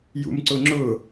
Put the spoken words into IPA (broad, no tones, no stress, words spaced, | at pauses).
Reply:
jṵmǀʊŋ͡ǁʊ